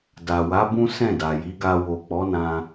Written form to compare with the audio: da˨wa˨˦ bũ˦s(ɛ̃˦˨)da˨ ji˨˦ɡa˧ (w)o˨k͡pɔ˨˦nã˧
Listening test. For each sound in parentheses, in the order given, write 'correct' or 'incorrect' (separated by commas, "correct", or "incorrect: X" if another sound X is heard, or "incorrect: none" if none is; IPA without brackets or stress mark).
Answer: correct, correct